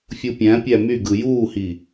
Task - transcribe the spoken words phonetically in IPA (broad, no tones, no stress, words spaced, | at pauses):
fʲupʲæ̃pʲæ myɡɯ juːhi